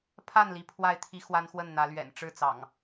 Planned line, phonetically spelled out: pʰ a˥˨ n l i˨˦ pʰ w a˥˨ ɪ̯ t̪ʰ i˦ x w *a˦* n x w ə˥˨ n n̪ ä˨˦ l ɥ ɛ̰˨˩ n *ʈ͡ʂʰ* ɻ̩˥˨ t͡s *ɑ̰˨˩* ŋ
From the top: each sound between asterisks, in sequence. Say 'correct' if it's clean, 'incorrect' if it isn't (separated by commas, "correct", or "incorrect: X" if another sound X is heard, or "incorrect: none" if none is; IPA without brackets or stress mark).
correct, incorrect: ʈ͡ʂ, correct